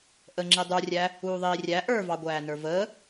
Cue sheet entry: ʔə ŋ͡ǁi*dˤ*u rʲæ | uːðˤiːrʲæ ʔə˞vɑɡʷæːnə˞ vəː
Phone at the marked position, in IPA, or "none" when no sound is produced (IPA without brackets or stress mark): dˤ